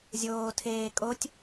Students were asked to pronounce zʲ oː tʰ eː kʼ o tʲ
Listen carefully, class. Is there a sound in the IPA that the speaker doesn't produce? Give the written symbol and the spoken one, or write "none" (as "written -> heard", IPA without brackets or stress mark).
none